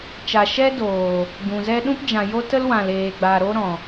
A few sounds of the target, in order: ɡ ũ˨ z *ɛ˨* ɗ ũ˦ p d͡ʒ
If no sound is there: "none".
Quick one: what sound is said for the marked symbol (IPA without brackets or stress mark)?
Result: ɛ˦